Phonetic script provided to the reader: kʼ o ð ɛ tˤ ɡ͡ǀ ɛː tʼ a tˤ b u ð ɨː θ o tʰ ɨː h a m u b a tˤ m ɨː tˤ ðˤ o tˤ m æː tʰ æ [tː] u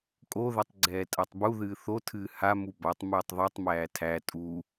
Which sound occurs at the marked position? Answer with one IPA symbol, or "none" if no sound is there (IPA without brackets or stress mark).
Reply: tʼ